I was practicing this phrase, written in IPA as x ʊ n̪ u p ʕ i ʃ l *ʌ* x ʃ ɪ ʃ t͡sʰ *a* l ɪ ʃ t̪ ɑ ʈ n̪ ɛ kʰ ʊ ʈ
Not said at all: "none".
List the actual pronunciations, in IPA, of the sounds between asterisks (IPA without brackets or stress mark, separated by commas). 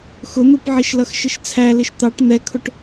ʌ, æ